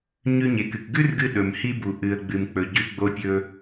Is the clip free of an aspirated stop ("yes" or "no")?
yes